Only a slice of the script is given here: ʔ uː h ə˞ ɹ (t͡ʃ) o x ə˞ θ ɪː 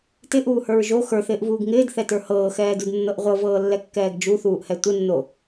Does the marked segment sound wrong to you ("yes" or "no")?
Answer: yes